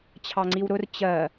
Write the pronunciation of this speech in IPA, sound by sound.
t͡ɕʰ ɑ ŋ͡ǀ i w ɾ ʊ r t͡ɕ ɜ

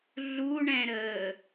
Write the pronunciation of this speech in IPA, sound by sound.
ɮ u ɳ ɛ̃ ɾ əː

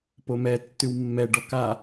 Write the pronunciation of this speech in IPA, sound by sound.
p o m ɛ tː ʉ w mː ɛ ɖ ɔ k a

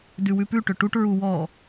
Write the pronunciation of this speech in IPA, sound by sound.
d ʉ w ʉ p ʉ ʈ ʏ ʈ u ʈ ɹ u w ɔ

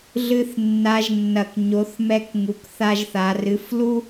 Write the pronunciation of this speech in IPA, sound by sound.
ɮ ɨ˧ θ nː a˩˧ ʒ nː ɐ˩ k ɲ o˩˧ θ m ɛ˧ k ŋ u˩˧ k θ a˧ ʒ θ a˩˧ r ɨ˩˧ f l u˥

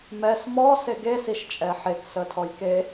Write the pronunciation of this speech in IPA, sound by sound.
m ɛ s m ɔ s e ɡ e s i ʃ t͡ʃʼ ɛ ħ e k s ə tʰ ɔ j k e

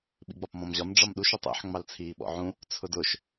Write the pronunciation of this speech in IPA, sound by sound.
ɓ ḭ ɡ͡b ɒ p m ɔ̃ m ʑ ɒ m ɖ͡ʐ ɒ m ɗ u ʃ ʊ tˤ ḭ ħ ŋ͡m ɑ l t͡sʰ iː ɓ ɔ̰ ʕ ũ | t͡sʰ ʊ d ʊ ʃ

